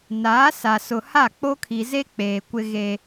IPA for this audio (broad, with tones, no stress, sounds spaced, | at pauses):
n aː˨˦ s a˨ s ʊ˨ h a˦˨ k͡p o˦ kʰ i˨ z e˦ k͡p eː˨ kʷ ɪ˦ ɣ e˦